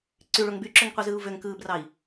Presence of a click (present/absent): present